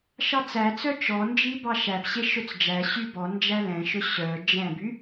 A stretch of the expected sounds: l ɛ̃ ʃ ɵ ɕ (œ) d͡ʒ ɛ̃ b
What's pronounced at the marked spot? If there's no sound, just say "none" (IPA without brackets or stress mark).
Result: œ